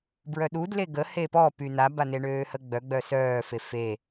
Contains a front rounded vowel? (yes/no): yes